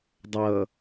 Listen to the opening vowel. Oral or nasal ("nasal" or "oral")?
oral